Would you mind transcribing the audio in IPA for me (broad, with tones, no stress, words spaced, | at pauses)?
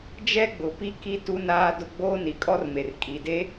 d͡ʒɛ˦ɡ͡bʊ˨pi˦ki˦ tu˦naː˦dʊ˦ ɡ͡boː˦ni˨kʼɔ˦rme˨r kʼi˨de˦